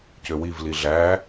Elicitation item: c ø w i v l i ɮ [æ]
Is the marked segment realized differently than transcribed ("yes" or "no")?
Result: no